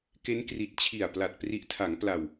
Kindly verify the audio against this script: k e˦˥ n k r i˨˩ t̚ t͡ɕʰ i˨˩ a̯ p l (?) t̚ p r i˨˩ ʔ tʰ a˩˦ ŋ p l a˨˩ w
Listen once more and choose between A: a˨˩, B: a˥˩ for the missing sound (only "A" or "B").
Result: A